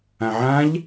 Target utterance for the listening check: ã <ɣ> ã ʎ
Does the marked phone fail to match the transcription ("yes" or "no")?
yes